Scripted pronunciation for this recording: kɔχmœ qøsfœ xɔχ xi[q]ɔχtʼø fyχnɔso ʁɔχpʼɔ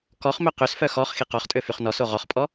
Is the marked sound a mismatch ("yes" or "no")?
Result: no